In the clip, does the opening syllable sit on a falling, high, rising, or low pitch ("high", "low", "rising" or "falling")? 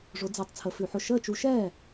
rising